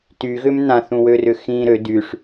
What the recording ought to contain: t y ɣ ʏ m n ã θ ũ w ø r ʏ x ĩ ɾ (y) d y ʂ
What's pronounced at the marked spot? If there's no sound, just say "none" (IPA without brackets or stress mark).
ø